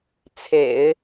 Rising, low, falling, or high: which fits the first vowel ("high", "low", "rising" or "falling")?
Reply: low